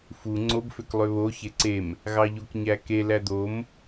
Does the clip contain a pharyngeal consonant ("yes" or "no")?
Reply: no